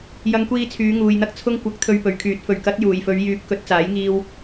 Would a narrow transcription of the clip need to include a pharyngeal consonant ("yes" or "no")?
no